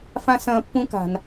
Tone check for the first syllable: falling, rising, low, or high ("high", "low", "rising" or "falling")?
high